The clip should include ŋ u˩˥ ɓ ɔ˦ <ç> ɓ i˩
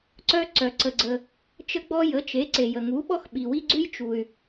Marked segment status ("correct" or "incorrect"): incorrect